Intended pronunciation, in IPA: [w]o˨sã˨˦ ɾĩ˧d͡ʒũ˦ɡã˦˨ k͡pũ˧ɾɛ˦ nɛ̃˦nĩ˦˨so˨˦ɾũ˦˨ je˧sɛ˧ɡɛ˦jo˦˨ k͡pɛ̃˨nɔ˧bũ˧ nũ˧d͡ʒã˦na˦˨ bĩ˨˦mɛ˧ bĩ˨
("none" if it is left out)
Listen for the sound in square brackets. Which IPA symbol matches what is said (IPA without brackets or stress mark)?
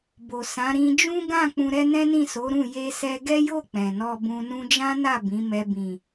b